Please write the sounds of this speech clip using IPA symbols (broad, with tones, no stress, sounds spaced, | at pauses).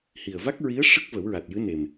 h i˨˩ ə̯ v a˦˥ k̚ ɹ i˧˥ ə̯ ʂ ə˦˥ k̚ v ə˨˩˦ w ɹ a˨˩ t̚ j ɨ˧˥ n e˨˩ m